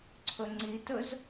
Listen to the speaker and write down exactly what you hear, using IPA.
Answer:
ǀʰɵŋ͡ǀitɵz

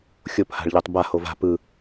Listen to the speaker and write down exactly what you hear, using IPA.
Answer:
xʲopha̤ɭʎɛtˤ ba hova̤ pɯ

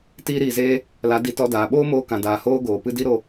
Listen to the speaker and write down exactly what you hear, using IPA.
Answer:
tiː˧ɾiː˨zeː˧ | la˨˦ di˧tɔ˧daː˨ ɓoː˦moː˧kã˨daː˨ hoː˦ ɡoː˨pɨ˦di˦ɾo˧

